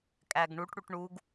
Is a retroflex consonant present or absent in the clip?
present